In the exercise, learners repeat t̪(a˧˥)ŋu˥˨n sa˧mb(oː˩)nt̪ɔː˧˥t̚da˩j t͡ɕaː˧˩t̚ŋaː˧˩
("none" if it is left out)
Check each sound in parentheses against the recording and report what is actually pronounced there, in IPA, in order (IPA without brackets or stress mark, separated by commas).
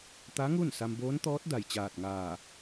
a˧˥, oː˧˥